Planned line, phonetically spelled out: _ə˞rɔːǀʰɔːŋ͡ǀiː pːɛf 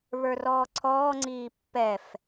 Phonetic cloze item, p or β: β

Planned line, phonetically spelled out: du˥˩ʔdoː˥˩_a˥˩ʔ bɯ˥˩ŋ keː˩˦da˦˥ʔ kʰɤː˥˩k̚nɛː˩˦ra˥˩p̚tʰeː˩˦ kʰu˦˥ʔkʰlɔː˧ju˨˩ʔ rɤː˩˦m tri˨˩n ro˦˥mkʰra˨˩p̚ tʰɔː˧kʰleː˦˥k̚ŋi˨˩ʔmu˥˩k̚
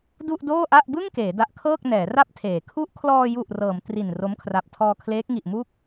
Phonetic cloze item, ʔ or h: ʔ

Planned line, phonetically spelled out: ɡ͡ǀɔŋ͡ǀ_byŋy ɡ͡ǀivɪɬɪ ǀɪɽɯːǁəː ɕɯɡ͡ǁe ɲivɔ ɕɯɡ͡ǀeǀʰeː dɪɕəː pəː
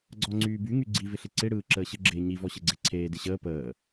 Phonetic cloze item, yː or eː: yː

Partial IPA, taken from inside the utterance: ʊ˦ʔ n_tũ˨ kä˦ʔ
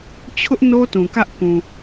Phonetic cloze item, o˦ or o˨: o˦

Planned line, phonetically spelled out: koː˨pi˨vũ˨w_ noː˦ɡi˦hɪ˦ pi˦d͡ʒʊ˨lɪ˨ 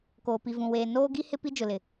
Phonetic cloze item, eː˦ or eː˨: eː˨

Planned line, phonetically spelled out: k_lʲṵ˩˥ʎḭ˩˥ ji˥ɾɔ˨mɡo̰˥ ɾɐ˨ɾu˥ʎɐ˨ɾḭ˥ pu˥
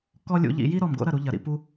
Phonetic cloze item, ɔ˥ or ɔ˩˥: ɔ˥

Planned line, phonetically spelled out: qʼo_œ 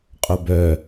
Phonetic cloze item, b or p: b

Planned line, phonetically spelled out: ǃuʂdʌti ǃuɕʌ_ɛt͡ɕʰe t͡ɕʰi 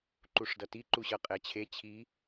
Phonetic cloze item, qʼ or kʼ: qʼ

